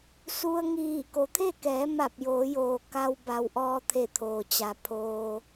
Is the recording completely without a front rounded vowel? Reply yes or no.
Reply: yes